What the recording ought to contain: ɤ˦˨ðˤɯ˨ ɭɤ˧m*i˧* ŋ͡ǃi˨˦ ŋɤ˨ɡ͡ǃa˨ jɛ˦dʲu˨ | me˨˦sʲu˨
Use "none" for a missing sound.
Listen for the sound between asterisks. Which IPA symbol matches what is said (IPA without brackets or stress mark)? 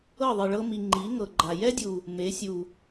i˨